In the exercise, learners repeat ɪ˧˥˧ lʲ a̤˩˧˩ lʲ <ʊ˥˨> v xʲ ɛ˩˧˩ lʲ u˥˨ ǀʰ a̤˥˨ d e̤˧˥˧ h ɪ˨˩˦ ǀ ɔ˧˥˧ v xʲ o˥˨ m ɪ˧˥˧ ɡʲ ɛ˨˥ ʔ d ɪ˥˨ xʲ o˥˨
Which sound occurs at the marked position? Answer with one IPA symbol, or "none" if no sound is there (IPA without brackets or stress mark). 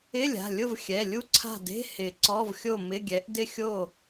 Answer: ʊ˥˨